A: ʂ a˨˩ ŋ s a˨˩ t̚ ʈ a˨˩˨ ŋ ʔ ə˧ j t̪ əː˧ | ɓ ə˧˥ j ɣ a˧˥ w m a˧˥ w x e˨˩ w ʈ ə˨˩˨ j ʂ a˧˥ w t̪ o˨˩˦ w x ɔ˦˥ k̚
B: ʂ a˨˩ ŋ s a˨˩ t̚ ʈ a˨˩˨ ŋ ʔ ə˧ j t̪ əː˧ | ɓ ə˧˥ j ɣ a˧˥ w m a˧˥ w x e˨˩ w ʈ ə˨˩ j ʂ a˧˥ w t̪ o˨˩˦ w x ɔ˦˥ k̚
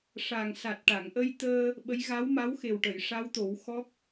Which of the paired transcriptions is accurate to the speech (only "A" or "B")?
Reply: A